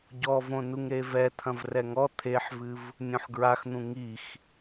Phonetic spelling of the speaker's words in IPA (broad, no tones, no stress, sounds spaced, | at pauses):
ɟ ɔ v õ n u ŋ ɾ e v ɛ t̪ʰ ɐ̃ v r ɛ ŋ ɔ t̪ʰ e ħ v ɨ v | nʲ õ ħ ɡ ɹ a x n̪ ũ ŋ i x